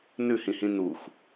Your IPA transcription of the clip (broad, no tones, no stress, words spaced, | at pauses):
nʉhĩhĩ nux